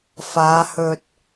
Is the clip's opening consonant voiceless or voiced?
voiceless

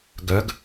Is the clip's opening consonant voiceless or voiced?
voiced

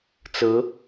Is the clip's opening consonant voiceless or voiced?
voiceless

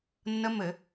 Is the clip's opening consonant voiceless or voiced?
voiced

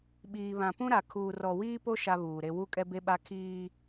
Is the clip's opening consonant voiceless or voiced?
voiced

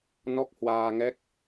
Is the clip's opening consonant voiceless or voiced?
voiced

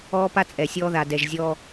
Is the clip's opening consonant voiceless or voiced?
voiceless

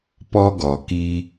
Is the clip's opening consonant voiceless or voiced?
voiceless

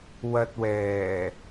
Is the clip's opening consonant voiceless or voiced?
voiced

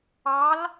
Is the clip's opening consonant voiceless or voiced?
voiced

